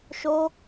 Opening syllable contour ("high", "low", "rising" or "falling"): high